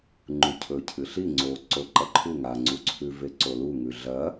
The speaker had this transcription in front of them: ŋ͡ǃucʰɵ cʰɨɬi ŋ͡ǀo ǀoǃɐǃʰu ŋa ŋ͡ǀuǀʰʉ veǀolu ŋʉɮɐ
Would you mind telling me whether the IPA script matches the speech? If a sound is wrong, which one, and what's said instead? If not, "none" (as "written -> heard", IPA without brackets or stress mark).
none